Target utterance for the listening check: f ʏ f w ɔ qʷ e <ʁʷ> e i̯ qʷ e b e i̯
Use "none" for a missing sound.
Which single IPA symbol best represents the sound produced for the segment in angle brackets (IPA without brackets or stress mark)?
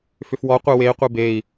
w